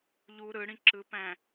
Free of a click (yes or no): no